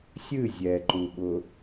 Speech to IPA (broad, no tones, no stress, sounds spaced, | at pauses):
sʲ ɨ zʲ ɛ ǃ u ɓ ʊ